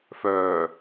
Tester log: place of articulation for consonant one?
labial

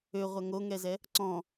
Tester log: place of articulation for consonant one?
uvular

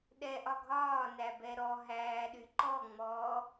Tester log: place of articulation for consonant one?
alveolar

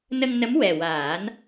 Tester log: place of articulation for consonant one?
alveolar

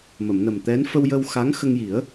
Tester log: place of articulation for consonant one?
labial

